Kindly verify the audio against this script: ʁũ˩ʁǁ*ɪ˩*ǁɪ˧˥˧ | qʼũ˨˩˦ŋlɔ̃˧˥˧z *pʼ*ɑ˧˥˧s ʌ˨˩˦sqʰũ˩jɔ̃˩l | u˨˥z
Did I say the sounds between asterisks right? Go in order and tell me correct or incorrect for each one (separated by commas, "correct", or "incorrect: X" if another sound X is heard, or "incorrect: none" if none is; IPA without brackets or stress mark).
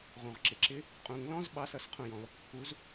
correct, incorrect: ɓ